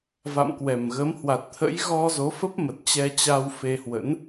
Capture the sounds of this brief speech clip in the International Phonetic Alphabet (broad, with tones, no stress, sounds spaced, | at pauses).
v a̰˧˨ m k w ɛ˨˩ m ɣ ə˨˦ m h w a˨˩ t̚ t̪ʰ ə̰˧˥ j ɣ ɔ˧ z o˨˦ f ə˦˥ p̚ m ə˨˩ t̚ t͡ɕ ɛ˧ t͡ɕ a˧ w f e˧ h w ə̰˧˥ n